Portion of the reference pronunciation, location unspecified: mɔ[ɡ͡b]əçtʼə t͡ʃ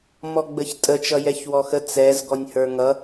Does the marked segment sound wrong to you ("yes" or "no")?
no